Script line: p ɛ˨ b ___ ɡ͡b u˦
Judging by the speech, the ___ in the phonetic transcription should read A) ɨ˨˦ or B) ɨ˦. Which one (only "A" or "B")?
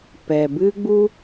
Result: B